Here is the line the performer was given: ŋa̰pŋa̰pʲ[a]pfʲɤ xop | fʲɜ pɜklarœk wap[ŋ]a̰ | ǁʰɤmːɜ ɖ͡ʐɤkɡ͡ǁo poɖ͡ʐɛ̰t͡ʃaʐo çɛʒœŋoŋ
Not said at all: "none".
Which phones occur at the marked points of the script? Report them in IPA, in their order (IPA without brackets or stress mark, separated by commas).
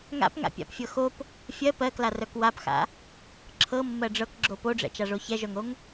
a̰, x